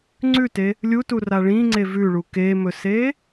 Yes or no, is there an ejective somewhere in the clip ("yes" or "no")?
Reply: no